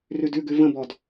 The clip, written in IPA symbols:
rʉdʉɡʉ və̃bɔd

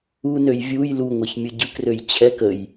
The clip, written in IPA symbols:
unøj vʲuj luŋʷɛçmʲɯ ɟɯkrøj t͡ɕʰɛk əj

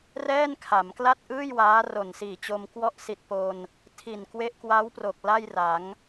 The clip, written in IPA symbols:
rɛː˥˩nkʰa˩˦mkla˥˩t̚ʔɯː˥˩j waː˦˥ro˨˩nsiː˨˩t͡ɕo˧m kwɔ˦˥ʔsi˨˩t̚ po˧n | tʰi˨˩nkwe˦˥ʔkwa˦˥wpro˨˩k̚ la˥˩jra˩˦ŋ

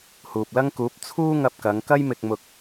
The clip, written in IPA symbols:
huː˨p̚lɐ˥ŋ kuː˨˥p̚ t͡sʰuː˥ ŋɐ˧p̚kɐ˨˧ŋkɐ˥jmɪ˧k̚ mʊ˧k̚

